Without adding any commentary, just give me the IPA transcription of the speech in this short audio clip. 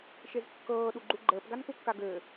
ʃ e z kː ɤː ɗ u ɡ͡ǃ u ɡ͡ǃ əː p ɡ a n k u kː a ɡ ɘː

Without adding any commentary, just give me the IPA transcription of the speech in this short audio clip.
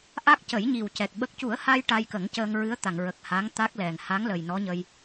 ʔ a˦˥ k̚ c ə˨˩˦ j ɲ i˨˩ w c ɛ˨˩ k̚ ɓ ə˦˥ k̚ c u˨˩˦ ə̯ h a˧ j ʈ a˧ j k ə˨˩˦ ŋ c əː˧ ŋ ɹ ɨ˧˥ ə̯ t̪ a˨˩˨ ŋ ɹ ə˨˩ k̚ h a˧˥ ŋ t̪ a˦˥ k̚ l ɛ˨˩ ŋ h a˧˥ ŋ l ə˨˩ j n ɔ˧˥ ɲ ə˧ j

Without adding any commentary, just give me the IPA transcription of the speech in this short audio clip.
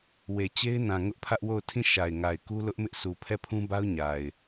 w e˨ t͡ɕ e˦ ɪ̯ n ã˨ ŋ ʊ˦ ʔ pʰ ä˦ ʔ w o˦˨ ʊ̯ tʰ ĩ˦˨ ʃ a˨ ɪ̯ ŋ a˨ ɪ̯ k u˦ l ʊ˦ ʔ m ɪ˦ ʔ sʰ u˨ pʰ ɛ˦˨ pʰ ũ˦ b a˦ ʊ̯ ɲ a˨ ɪ̯

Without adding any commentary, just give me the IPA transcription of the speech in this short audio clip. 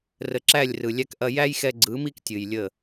r ə˨ ǁ æ˦˨ lʲ r ɯ˨ lʲ æ˧ k ʔ ɐ˧ j æ˦ j x ɛ˧ ɡ͡ǀ ɯ˨˦ m i˦ k tʲ ɨ˨ j lʲ ə˦˨

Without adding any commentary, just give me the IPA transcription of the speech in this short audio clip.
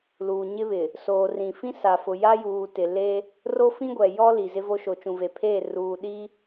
l uː˨ ɲ ɪ˦ β ɪ˨ | s oː˨ r ĩ˨ f ĩ˦ s a˨ f ʊ˨ j a˦ j uː˨ t ɪ˨ l e˦ | r o˦ f ĩ˦ ɡʷ ɛ˨ j ɔ˦ l i˨ z ɪ˦ v o˦ ʃ o˨ t͡ʃ ũ˨ v e˨ pʰ eː˦˨ r uː˨ ɗ i˦

